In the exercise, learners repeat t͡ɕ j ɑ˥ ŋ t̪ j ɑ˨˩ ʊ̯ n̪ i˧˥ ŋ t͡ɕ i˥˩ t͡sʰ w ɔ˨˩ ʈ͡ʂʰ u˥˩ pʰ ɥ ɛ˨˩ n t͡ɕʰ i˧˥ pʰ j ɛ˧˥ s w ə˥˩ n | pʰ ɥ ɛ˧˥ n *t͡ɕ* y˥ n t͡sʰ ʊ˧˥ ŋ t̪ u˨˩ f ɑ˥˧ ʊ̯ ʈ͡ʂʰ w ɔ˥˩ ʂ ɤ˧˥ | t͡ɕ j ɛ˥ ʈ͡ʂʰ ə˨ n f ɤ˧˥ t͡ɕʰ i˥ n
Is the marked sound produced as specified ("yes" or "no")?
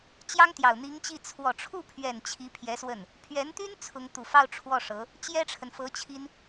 no